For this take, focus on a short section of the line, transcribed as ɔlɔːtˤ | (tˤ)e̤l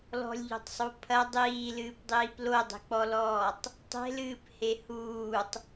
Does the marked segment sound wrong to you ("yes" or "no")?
no